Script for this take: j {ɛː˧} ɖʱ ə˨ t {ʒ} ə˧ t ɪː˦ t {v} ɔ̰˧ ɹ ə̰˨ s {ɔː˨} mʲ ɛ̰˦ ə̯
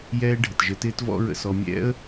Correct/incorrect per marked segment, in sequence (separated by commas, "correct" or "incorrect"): incorrect, correct, correct, incorrect